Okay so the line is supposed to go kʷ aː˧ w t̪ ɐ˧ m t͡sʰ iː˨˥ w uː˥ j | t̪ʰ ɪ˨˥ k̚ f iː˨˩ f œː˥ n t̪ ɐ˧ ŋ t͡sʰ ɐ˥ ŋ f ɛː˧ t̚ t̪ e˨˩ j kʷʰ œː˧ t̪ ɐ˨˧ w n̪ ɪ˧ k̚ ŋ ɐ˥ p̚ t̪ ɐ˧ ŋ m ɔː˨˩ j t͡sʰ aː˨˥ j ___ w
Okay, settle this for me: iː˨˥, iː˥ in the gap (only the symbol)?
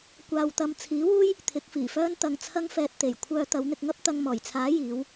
iː˨˥